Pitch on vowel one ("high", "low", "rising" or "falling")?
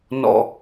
low